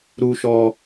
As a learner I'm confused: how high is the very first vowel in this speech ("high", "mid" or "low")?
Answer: high